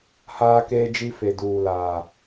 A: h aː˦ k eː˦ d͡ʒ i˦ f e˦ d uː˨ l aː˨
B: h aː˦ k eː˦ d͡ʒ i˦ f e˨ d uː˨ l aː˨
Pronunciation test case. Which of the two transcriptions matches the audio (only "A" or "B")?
B